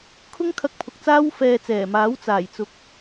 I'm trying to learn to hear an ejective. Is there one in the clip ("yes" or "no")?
no